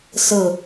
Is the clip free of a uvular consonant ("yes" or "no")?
yes